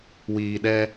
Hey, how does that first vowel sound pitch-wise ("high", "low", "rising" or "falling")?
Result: low